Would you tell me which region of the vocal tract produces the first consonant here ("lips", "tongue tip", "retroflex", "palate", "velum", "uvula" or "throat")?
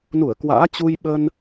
tongue tip